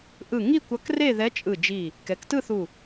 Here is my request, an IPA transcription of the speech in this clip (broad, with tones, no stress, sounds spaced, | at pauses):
ʔ ɯ˧˩ ŋ i˥˧ kʷ ʌ˧˥ k r e˥˧ ð ɛ˧˥ t͡ʃʼ ɯ˧˩ d͡ʒ i˧˩ | k ɛ˩˥ k t ɯ˥˧ θ u˧˩